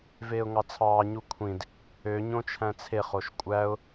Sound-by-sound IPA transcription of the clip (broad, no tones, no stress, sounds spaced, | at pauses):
v eː ʊ̯ ŋ ɑ t͡sʰ ɑː ɲ u kʷʰ ĩ d | ø ɲ õ t͡ʃʰ æ̃ t͡sʰ e χ o ʃ kʷʼ æ ʊ̯